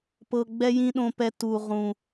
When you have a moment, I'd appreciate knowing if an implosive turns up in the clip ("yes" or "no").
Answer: yes